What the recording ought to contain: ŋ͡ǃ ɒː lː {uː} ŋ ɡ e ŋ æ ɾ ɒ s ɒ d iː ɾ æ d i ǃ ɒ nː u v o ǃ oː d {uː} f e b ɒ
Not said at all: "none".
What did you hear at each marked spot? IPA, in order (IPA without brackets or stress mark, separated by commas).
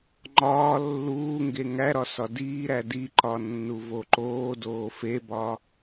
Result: uː, oː